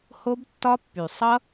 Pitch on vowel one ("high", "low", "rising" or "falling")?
high